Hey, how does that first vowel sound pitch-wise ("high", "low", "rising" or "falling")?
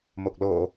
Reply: low